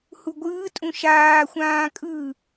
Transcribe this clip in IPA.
h u ɡʷ ɯː tʼ ũ ʃ aː xʷ ãː kʼ ɯ

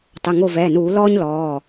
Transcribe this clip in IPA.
tˤ ɘ˩˧˩ ŋ o˧˩ v ɛː˩˧˩ n uː˧˩˧ l ɔː˦ ɲ l ɔː˩˧˩

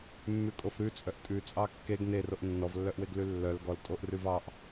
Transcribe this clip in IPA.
mː ʉ kʼ o f ɾ ʉ t͡sʼ œ ʔ tʼ ʉ t͡sʼ ɑ kː e ɡ n e r o ʔ nː ɔ v lː œ ʔ w e ɡ l ʉ lː œ l ɡ ɔ l tʼ o ʔ r ʉ v ɑ ʔ

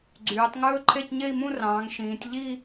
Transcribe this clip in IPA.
ɡ͡ǀ yː˩˧ tˤ ŋ ɵː˥ ǃʰ e˥˧ c ɲ e˥˧ i̯ m ũ˥˧ r ɑ̃ː˩˧ ŋ ʃ ĩː˩˧ tʲ ʎ i˥˧

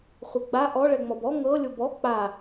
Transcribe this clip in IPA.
χʷ e ɡ͡b a ʔ ɔ ɭ ɛ ŋ͡m ɔ b ɔ ŋ ɤ lʲ o b ɔ k͡p a

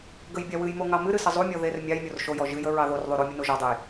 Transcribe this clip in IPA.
ɡ ə j bʲ a w ɨ j m o ŋ ɑ m ɨ ɾ ɨ s ə zˤ u mʲ ɔ ð e r mʲ ɑ j mʲ o r ʃ o j ɔ ʒ ɨ j ə ɹ ɑ ð o r ðˤ u ɾ o mʲ ə n o ʒ ɔ dˤ e j

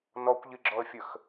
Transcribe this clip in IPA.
n ɔ kʷ ʎ i ɡ͡ǁ ɔ ə̯ fʲ ə x

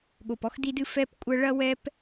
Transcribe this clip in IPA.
ɠ o˨ p ɔ˦ x d i˦ d ɨ˦ f ɛ˦ p kʷʼ ɐ˦ ɭ ɐ˦ w ɛ˦ p

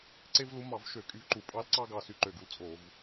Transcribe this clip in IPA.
ǀ e˥ v l u˧˥ m ɑ˧˩˧ v ʃ ø˧˩˧ kʼ y˧ v ǃ u˧˩˧ pʼ ɑ˧˥ l ǀ ɑ˥ ɡ ɑ˧ s y˧˩ ǃ ø˧˩ ɡ u˧ l t͡sʼ o˧˩˧ v

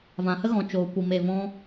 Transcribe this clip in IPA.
v ã˨ h ə˦ ɣ ɔ̃˨ t͡ʃ oː˨ kʷ i˨ m e˨ v ɔ̃˧

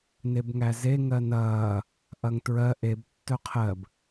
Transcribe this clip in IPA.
n e b ŋ æ z e ŋ ɜ n ɐː | ʔ ɐ ŋ t ɹ ɜ ʔ e b tː œ qʰ ɜ b

